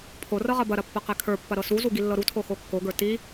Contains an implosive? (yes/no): no